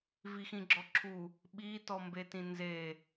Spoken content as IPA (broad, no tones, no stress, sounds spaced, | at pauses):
v i x ĩ ɡ͡ǁ ɔ ǁʰ u | ɓ i t ɔ m b e t ĩ n z e